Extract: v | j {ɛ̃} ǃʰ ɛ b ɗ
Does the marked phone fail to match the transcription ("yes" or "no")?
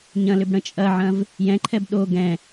no